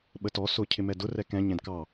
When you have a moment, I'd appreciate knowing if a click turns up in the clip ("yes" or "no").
no